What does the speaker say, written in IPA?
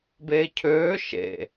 b eː cʰ øː ʃ ḛ

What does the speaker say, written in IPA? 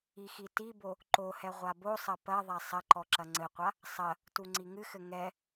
i x i t i b o | ǃ o h ɛ ʁʷ a b o sˤ ɐ p ɐ ðˤ a sˤ ɐ ǃ ɔ ǁ ɐ ŋ͡ǀ ɘ qʷ a | sˤ ɐ | t u ŋ͡ǀ i ŋ ɨ x ɘ ŋ ɛ

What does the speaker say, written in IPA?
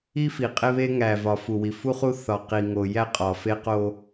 i˦ f i˨ qʼ e˦ β e˦ ŋ æ˨ v ɒ˨ f u˨ w i˨ f u˦ χ u˦ θ ɒ˨ q i˨ ŋ o˨ j æ˦ qʼ ɒ˨ f e˦ q o˦

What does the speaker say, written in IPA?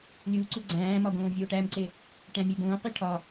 lʲ u ǀ u ɡ͡ǀ æ̃ː m ɒ ɡ õː vʲ oː ʈ æ m ǀ e | ʈ æ̃ mʲ e b õː q i ʈʰ ɒ

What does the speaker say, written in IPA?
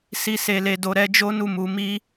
s i˨ s e˨ l e˨ d o˨ ɾ ɛ˧ d͡ʒ o˦ n u˦˨ m u˨˦ m i˦

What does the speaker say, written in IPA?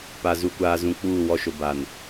p a˨ z u˨ kʷ aː˨ z ũ˨ k͡p uː˦˨ w ɔ˦ ʃ ʊ˨ b a˨ n

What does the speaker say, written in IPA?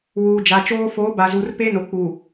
w uː˨ d͡ʒ a˨ t͡ʃ oː˦ f oː˨˦ b a˨ z u˨ r p e˦ n o˨ k͡p uː˨

